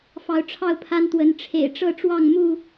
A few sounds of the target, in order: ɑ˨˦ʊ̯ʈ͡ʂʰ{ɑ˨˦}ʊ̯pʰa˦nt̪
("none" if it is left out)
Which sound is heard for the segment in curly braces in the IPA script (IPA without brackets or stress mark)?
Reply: ɑ˥˨